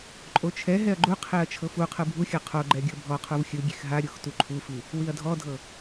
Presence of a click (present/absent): present